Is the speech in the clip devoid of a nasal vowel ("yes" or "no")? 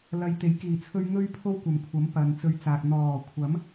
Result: yes